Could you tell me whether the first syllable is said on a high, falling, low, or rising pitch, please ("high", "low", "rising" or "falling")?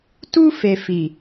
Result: high